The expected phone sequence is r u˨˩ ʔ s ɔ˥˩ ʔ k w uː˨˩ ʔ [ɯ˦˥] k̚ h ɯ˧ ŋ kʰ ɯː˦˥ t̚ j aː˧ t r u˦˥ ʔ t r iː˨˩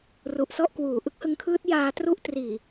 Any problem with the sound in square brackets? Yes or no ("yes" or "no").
no